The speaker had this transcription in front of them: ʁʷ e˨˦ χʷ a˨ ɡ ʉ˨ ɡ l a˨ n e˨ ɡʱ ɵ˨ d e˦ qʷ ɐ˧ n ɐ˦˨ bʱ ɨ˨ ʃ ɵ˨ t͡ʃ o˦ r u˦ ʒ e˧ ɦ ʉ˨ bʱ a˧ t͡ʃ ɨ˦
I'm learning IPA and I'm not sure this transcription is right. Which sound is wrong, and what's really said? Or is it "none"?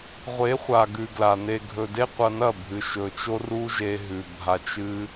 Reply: none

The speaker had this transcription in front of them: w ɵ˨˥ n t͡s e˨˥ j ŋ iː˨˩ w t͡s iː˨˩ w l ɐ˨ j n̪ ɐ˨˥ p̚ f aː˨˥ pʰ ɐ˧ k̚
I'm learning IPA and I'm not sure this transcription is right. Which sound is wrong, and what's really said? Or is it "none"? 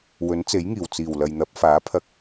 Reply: none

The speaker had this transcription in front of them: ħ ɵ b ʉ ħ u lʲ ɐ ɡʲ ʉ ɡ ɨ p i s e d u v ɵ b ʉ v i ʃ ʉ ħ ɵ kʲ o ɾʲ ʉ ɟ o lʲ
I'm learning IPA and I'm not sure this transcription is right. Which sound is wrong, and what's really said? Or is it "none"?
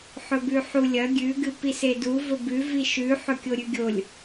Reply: ɟ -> ɡʲ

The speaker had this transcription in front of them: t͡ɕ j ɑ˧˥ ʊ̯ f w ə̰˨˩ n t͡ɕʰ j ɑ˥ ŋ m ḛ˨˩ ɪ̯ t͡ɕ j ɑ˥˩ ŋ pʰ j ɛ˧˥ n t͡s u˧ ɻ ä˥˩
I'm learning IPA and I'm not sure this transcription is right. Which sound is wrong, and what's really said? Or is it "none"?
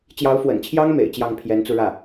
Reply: none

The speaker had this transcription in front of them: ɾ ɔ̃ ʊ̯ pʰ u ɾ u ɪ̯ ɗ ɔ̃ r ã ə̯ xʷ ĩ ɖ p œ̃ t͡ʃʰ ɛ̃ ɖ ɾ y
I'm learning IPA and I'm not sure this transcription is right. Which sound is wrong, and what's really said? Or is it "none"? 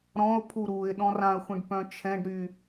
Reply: none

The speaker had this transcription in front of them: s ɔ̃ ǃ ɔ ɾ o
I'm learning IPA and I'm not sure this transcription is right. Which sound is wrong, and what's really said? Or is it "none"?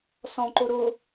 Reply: ɔ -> o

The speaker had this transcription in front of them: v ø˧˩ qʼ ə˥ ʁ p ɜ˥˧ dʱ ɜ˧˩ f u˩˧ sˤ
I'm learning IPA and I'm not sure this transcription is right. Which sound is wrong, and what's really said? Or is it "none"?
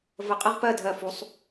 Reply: ø˧˩ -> ə˧˩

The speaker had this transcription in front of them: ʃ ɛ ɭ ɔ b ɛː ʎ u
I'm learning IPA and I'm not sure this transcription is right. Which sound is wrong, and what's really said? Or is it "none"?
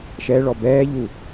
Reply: none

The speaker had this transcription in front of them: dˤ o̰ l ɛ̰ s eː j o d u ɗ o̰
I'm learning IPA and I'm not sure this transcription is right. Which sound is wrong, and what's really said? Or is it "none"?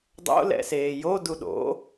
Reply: none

